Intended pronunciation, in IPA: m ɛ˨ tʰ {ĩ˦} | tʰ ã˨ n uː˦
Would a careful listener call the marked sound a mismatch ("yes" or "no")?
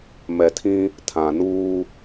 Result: no